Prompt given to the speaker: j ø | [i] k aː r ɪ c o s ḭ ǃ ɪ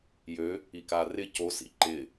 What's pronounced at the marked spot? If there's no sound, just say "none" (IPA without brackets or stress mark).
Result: i